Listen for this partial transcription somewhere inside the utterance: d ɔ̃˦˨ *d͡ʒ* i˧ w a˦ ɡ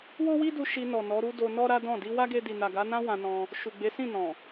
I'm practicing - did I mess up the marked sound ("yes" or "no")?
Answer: yes